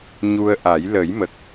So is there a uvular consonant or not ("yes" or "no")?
no